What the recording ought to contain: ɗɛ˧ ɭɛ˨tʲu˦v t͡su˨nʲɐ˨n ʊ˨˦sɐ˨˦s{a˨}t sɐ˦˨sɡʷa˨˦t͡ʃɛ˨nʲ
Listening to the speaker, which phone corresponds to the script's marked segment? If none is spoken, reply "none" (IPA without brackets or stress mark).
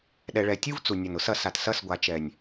a˨